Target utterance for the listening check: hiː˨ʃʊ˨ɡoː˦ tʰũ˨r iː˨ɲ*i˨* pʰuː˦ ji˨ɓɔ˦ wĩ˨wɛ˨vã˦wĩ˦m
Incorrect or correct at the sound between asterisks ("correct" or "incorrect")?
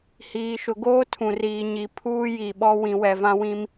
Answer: correct